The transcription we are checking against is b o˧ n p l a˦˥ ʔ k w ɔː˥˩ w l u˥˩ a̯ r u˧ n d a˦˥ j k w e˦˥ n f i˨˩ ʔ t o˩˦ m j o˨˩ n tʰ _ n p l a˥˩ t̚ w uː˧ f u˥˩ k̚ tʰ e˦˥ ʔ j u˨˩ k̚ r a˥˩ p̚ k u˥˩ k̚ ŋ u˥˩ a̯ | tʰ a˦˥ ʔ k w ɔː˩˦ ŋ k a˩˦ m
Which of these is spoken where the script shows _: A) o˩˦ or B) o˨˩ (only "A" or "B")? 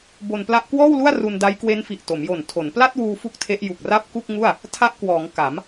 A